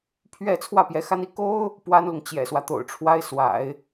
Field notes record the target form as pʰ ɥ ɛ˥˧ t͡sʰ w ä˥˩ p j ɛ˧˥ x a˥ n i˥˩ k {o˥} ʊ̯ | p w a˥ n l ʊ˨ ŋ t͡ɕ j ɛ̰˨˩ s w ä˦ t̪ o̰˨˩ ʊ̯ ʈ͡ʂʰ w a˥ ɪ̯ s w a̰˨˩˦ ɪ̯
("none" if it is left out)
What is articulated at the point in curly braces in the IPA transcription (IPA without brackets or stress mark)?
o˥